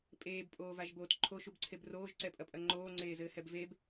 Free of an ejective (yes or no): no